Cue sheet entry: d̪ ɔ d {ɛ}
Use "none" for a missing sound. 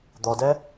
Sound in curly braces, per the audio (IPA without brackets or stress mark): ɛ